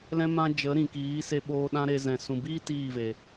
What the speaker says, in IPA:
l ɛ̃˦ m ã˧ d͡ʒ ə˨˦ ɾ ĩ˨ k iː˨˦ s e˦ ɓ oː˦ ɗ ã˦ ɾ e˧ z ɛ̃˨ s ũ˨ b iː˦ t iː˦˨ v e˨

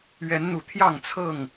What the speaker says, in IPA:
ɥ ɛ˨˦ n n̪ u˨˩ t̪ʰ j ɑ˥˨ ŋ t͡sʰ ɤ˥˨ ŋ

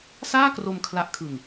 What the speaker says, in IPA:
s aː˥˩ k r o˧ m kʰ l a˦˥ ʔ kʰ ɯ˧ ŋ

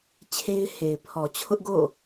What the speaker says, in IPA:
t͡ɕʰ e˦ ɪ̯ h e˨ ɪ̯ pʰ ɔ˨ t͡ɕʰ ʊ˦ ʔ ɡ o̰˦˨

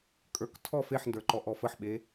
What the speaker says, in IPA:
kʼ ə˞ k tʰ ɔ f e ħ n d ə˞ ǃ ɔ ʔ ɔ f ə ħ ɓ e

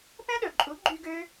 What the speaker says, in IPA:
p ɛ̃˦ ɗ ɵ˨ ǃʼ u˨˦ ɡ͡ǃ y˧ ɡ ø˦

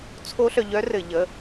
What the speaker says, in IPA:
t͡sʰ o˦˥ ɬ œ˧ ʎ œ˦˥ r ɘ˧˩˧ ʎ ə˩˧˩

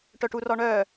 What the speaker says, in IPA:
ʈ œ ʈ u r ɔ ɳ œ

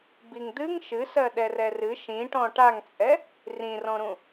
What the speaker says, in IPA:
b i ŋ d̪ ɨ ŋ ʃ ɨ s ɜ ɗ ɛ r ɛ r ɨ ʃ ĩ ʈ ɔ̃ ʈ a ŋ t͡sʼ ɛ | r ĩ r ɔ̃ ɾ ũ

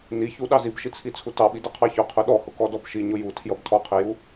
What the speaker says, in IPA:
n i ç u ɗ ɑ z i b ʃ i t͡sʰ i t͡sʰ u t ɑ ɓ i d ʌ qʰ ɑ ç ʊ qʰ ʊ ɗ ɔ h ʊ k ɔ d ɔ b ʃ i ɲ ʊ j u tʰ j ʌ b tʰ ɔ qʰ i j u

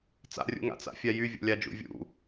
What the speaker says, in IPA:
t͡s a̰ rʲ ṵ ŋ a̰ t͡s a̰ fʲ a j y vʲ o̰ lʲ a d͡ʒ ṵ vʲ ṵ

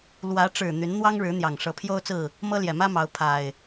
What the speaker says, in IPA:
l w ä˨˦ ʈ͡ʂ ɻ̩˨˩ n̪ y˨˦ n n̪ w ɑ˦ ŋ ɻ ɻ̩˨˦ n̪ j ɑ˨˩ ŋ ʂ ɤ˨˦ pʰ j o˦ ʊ̯ t͡s ɹ̩˥˨ | m ɤ˦ l j ɛ˨˩ m ä˦ m ɑ˨˦ ʊ̯ pʰ a˨˩ ɪ̯

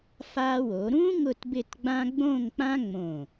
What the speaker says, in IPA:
f a˧ w o˩˧ ɾ ũ˥ ŋ ʊ˥˧ t b ɪ˥˧ t ɡ͡b ã˥ ɡ͡b õ˥˧ ŋ k͡p ã˥ ŋ͡m õ˧˩

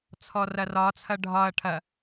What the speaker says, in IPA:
t͡sʰ ɔ r ɐ r ɒ t͡sʰ ɐ ɖʱ ɒ ɐ̯ ʈʰ ɐ

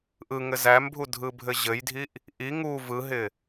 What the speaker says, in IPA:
ʔ ɯ ŋ ɘ z æ m bʱ u dʱ ɯ bʱ ɘ ʑ ɘ j dʱ i ʔ | ʔ i ŋ u v ɯ ɦ ɪ

